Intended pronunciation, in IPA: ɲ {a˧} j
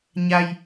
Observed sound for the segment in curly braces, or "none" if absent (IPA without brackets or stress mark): a˧